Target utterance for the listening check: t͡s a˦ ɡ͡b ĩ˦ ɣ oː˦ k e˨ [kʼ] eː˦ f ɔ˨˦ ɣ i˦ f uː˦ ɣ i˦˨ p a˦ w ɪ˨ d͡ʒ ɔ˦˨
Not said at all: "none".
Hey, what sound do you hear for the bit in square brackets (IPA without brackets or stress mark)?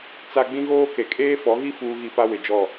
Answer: kʼ